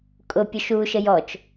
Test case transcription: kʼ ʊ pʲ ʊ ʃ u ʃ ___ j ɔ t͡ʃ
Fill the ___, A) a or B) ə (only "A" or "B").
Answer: B